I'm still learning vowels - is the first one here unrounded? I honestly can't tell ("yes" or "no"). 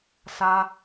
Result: yes